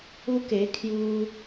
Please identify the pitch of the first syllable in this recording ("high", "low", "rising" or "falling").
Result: high